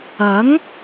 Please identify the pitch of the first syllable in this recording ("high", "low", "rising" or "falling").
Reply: rising